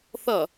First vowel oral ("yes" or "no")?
yes